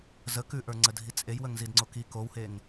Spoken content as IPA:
z ə k ʉ ʔ ə˞ ŋ͡ǀ ə dʱ i t͡sʼ e j w ə ŋ z i d ŋ͡ǀ o k i k o w h e ŋ

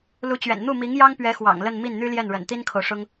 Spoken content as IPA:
l u˧˥ t͡ɕ ɥ ɛ̰˨˩ n n̪ u˥˩ m i˧˥ ŋ j ɑ˥ ŋ p ɥ ɛ˧˥ x w ɑ̰˨˩ ŋ l ə˥˧ n m i˥˩ n n̪ y˥ l j ɛ˥˩ n ɻ ə̰˨˩ n t̪ i˥ n kʰ o˨ ʊ̯ ʂ ʊ˥ ŋ

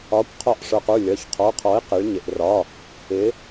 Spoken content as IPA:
ɒ˩˧˩ kʷ qʰ ɒ˧˩ ʔ ʂ ə˞˩ q u˩˧˩ lʲ ɒ˩˧˩ ç qʰ ɔ˩˧˩ qʰ ɔ˩˥ i̯ q ɪ˩˧ ɭ ɲ ɪ˩ ʔ r ɒ˩˧˩ | ɪ˩˧

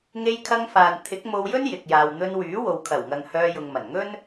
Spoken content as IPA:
ŋ e˧ j kʰ ɐ˧ ŋ f aː˨ n t̪ʰ ɪ˨˥ k̚ m o˧ w j ɵ˥ n j ɪ˨ k̚ j aː˨ w n̪ ɵ˧ n w yː˨˥ w o˨ w kʰ ɐ˨˩ w ŋ ɐ˨ ŋ h œː˧ j ʊ˨ ŋ m ɐ˨˩ n ŋ ɵ˥ n

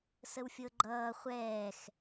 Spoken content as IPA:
s ə w fʲ ɤ ɡ͡ǃ ʌː χʷ ɛː x

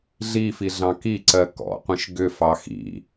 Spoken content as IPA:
ɮ i f i ɮ ɑ̃ k i ǀ ɜ k ɔ̰ qʷ ĩ ʃ ɡ ʏ f ɑ x ḭ

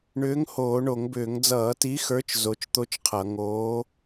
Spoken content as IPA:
ɳ ʏː˨˥ ŋ h oː˧˩˧ ɳ o˧˩˧ ŋ b ʏː˧˩˧ ŋ d͡z ʌː˧˩˧ t i˨˥ x ə˞˨˥ t͡ʃ z o˨˥ t͡ʃ t̪ o˥ t͡ʃ qʰ ʌ˧˩˧ ŋ oː˨˥

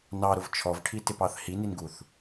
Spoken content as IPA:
n ɑ ɾ ʊ v t͡ʃʰ ɔ v ʈʰ i t ɪ p ɑ θ h i n i n ɡ u θ

